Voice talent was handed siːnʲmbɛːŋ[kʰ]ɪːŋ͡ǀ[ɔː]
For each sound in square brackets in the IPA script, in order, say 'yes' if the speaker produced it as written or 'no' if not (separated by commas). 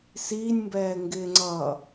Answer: no, no